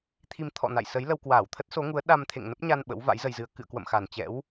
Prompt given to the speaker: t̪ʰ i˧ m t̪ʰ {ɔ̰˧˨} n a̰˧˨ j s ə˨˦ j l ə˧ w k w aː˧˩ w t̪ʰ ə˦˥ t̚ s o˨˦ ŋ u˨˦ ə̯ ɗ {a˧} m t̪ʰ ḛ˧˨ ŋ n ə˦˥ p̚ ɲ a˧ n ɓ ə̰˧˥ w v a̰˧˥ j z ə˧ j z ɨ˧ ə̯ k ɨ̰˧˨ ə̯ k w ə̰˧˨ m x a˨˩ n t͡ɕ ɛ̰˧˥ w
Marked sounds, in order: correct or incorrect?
correct, correct

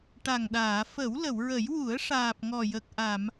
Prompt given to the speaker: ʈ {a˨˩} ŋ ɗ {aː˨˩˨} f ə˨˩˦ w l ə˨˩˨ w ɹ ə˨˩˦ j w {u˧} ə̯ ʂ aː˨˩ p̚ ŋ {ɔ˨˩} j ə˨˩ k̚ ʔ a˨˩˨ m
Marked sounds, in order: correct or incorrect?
correct, correct, incorrect: u˨˩˦, correct

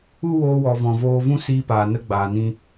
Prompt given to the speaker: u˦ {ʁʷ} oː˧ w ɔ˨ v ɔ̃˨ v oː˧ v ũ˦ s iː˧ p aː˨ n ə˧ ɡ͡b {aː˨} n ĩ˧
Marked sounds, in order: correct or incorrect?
incorrect: w, correct

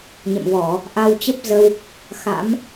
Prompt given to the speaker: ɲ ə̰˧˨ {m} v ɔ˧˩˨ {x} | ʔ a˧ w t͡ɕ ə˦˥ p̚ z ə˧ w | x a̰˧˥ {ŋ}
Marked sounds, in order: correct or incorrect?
correct, incorrect: none, incorrect: m

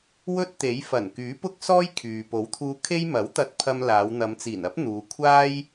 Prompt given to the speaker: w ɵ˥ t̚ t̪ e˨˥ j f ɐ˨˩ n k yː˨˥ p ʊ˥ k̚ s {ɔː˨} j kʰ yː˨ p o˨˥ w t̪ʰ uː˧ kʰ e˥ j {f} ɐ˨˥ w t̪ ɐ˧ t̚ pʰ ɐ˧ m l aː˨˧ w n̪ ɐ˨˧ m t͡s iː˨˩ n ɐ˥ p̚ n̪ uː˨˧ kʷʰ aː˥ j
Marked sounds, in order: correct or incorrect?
incorrect: ɔː˥, incorrect: m

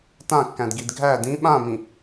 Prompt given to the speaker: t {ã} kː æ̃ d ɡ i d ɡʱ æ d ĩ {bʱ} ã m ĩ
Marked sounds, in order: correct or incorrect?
correct, incorrect: ɓ

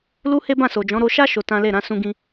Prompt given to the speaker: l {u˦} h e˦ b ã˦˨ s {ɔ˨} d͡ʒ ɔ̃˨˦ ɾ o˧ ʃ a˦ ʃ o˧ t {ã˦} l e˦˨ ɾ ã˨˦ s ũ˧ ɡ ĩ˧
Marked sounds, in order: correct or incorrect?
correct, incorrect: o˨, correct

